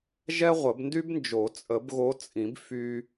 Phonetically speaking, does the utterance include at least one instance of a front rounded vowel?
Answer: yes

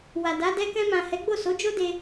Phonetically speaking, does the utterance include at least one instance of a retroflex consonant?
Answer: no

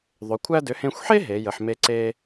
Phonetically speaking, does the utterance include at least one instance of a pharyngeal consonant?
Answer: yes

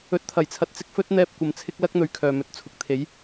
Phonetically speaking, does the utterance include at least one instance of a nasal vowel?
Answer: no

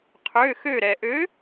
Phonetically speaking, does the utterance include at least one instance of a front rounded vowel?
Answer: yes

